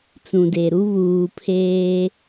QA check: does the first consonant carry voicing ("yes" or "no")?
no